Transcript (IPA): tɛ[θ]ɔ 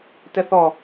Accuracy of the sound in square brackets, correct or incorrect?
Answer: correct